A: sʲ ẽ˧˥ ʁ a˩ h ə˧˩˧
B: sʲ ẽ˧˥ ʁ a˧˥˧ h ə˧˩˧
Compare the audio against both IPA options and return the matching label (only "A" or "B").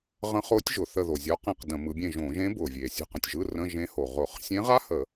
B